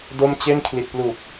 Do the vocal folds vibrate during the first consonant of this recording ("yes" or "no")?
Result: yes